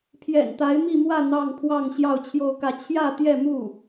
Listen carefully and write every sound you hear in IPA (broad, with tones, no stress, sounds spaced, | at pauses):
pʰ j ɛ̰˨˩ n t̪ a˧˥ ɪ̯ m i˥˧ m w ä˥˧ n̪ ɑ˥˧ ŋ pʰ w ɑ˥˧ ŋ ɕ j ɑ˥˧ ʊ̯ t͡ɕʰ j o˥˧ ʊ̯ k ä˥˧ t͡ɕʰ j ä˥˧ t̪ j ɛ˥˧ m u˥˩